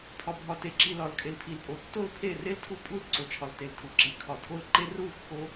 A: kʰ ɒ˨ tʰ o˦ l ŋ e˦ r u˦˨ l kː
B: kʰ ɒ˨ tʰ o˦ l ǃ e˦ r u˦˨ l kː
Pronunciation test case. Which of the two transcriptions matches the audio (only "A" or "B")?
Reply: B